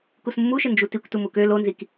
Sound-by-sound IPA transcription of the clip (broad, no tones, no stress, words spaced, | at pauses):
kusmːuʃɪ nd͡ʒutikʷ tumukø lonzik